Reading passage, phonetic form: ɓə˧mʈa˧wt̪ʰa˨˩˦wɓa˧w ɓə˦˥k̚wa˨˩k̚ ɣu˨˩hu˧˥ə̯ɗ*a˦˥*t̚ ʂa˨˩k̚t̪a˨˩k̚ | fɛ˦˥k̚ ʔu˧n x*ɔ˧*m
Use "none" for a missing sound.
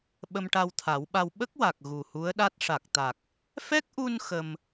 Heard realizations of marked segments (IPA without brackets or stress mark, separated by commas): a˦˥, ə˧